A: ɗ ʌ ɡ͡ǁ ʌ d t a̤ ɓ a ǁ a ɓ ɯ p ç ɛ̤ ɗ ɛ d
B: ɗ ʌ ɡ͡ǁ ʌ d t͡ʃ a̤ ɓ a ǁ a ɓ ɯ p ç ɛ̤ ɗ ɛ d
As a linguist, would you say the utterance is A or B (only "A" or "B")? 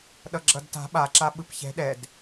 A